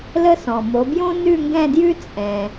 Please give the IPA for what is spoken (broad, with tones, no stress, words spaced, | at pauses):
lə˥sɔ̃˨ mo˨˦bjõ˥ nʉ˥˧ŋɡɛ̃˥˧djʉ˥ t͡sʼɛ̃˨